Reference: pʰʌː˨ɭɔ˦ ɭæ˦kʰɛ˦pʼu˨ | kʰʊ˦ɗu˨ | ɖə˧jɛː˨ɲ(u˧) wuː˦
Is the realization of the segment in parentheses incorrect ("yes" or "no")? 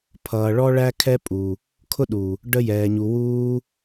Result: yes